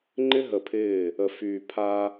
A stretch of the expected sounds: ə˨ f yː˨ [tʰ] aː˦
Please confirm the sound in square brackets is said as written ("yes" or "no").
no